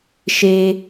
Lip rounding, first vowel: unrounded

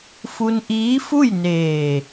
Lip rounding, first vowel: rounded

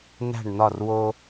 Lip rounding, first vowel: unrounded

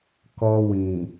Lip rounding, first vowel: rounded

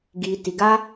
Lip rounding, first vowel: unrounded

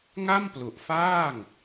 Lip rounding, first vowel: unrounded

